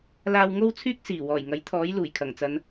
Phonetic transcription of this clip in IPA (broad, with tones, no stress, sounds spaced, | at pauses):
l aː˧ w ŋ o˥ w t͡sʰ yː˥ k̚ s iː˨˩ w ɔː˨˩ j ŋ ɐ˨˥ j t̪ʰ ɔː˨˥ j l uː˨˩ j kʰ ɐ˨˩ ŋ t͡s ɐ˨˧ n